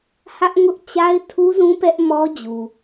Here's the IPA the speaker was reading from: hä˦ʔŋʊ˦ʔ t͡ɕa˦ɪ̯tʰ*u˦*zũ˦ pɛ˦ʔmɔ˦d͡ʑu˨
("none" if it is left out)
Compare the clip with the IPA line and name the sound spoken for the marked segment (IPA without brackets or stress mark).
u˦